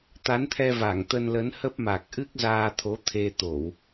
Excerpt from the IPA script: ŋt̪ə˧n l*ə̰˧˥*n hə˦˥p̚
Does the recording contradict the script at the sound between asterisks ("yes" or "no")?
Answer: yes